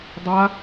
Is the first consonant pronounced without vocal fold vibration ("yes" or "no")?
no